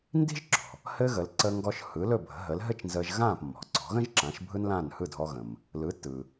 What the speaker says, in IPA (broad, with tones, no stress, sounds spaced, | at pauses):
n d i̤˥ ʒ ǁ ɔ̤˩ | h ɘː˥ ɣ ə˩˥ l ǀ əː˧ ŋ ɡ ɔ˧ ʃ h ɯ˩˥ l ɵ˥˩ bʱ ə̤˩˥ ɦ ə˩˥ l ɦ ɘ˥ t͡ʃ n z əː˧ ʒ ɣ ãː˥˩ p mː ɔ̤˩ ǀ ɔ̤˩˥ ɣ ə̃˥ ʒ ǁ ã˩˥ ʃ bʱ ɯ˥ n l ãː˥˩ n h ɯ˥˩ dʱ ɔ˧ ɣ ə̃˩ m | l ɯ˩˥ tː ɯː˩